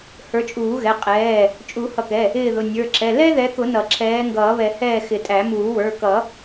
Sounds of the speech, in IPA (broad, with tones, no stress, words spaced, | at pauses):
hə˞˨˦t͡ʃʼuː˨˩˦ɣɛ˩˧˩ qʼɛː˩˧˩ | t͡ʃʼu˨˩˦ hʌ˨˩˦kɛ˩˧˩ | ɪː˦˨ðʊ˩˧˩ nʲə˞˩˧˩ǁɛ˩˧˩ lɛ˥ðɛ˨˦kʊ˨˩˦ nʌ˨˩˦ǁʰɛː˨˦ ŋɡʌː˨˩˦βɛ˨˩˦ hɛː˦˨xɪ˨˩˦tʼæ˨˩˦ muː˨˩˦wə˞˩˧˩kʌ˨˩˦